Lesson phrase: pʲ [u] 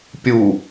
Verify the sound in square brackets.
correct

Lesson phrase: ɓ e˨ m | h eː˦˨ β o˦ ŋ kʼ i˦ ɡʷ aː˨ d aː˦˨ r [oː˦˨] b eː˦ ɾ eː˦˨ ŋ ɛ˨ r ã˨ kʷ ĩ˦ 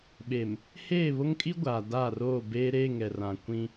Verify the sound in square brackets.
correct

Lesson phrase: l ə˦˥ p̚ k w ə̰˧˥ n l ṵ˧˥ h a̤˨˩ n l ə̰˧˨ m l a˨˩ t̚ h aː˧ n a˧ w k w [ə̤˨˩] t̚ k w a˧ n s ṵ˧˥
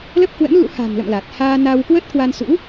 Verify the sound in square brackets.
incorrect: ə˦˥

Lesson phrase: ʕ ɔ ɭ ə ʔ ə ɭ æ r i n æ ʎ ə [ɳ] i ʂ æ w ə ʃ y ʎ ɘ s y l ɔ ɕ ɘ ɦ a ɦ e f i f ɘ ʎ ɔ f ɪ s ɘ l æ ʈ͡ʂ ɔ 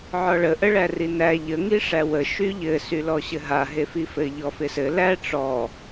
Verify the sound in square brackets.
incorrect: ŋ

